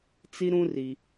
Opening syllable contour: high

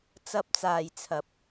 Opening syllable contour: high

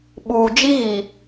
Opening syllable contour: low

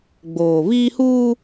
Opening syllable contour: low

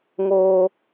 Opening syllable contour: high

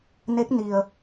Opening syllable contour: rising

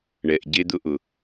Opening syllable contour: low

